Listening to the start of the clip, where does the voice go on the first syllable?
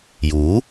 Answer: rising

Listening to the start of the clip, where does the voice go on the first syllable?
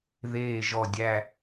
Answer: low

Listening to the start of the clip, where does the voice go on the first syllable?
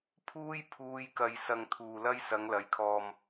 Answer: high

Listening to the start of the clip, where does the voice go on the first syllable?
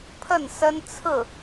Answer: falling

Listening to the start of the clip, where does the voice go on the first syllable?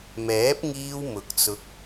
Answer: rising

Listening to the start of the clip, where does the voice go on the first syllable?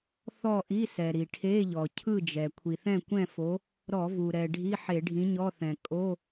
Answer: falling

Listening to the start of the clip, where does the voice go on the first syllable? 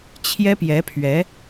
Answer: high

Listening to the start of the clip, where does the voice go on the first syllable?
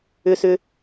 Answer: high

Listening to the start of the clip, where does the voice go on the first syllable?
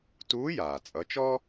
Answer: rising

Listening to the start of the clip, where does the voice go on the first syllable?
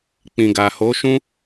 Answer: low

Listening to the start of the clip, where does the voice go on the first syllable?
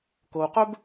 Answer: low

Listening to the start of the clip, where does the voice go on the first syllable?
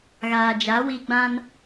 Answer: low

